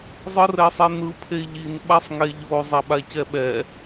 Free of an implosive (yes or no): no